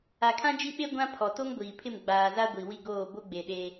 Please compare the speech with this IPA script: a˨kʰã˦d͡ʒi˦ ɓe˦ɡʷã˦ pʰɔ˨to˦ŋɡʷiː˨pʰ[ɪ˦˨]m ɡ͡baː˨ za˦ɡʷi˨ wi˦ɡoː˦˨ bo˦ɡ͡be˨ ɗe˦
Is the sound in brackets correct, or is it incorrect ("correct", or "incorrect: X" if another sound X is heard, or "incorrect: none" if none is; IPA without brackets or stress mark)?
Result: correct